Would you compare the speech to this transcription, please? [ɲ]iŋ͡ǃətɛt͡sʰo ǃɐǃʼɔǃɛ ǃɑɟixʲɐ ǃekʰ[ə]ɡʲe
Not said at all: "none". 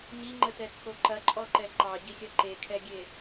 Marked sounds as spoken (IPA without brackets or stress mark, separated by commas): ɲ, ɛ